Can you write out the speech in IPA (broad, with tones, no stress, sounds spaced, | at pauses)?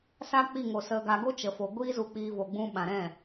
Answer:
s a˧ k͡p i˦˨ ŋ o˨ s ə˧ ɡ a˧ ɡ o˦ t͡ʃ ə˨ f o˨ ɡʷ iː˦ z u˧ k͡p iː˧ v o˨ ɡ͡b ũ˧ ɓ ã˨ ɾ ɛ̃˦˨